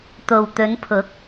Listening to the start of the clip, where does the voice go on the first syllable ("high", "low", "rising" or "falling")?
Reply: low